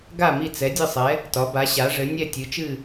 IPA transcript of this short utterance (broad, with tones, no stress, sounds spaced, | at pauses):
ɡ a˥˨ m i˥˨ t͡s ɛ˩˥ dʲ ɨ˥˨ sˤ ɛ˩˥ | t ɒ˩˥ b a˩˥ ɕ a˩˥ ʐ ɘ˩˥ nʲ ɛ˥˨ tʲ ɨ˩˥ t͡ʃ ɨ˥˨